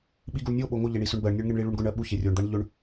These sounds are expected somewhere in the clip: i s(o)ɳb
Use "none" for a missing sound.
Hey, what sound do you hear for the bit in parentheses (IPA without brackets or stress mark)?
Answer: ɵ